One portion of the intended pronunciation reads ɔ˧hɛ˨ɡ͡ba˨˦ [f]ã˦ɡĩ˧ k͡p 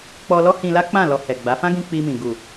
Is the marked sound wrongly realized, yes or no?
no